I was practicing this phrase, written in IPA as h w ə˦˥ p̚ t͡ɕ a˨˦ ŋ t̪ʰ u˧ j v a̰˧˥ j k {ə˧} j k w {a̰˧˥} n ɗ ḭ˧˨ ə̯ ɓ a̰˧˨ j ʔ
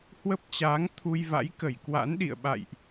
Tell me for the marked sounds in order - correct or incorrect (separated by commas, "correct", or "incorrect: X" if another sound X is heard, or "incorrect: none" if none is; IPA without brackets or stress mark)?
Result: incorrect: ə˧˩, correct